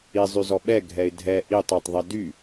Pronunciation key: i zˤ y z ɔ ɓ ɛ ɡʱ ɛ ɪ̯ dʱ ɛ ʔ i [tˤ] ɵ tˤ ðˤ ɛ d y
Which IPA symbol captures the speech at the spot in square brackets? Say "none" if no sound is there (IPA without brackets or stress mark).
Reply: tˤ